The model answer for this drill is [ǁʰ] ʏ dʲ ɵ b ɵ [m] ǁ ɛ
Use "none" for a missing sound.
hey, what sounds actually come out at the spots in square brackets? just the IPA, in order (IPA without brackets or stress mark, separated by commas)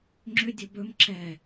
ŋ͡ǁ, m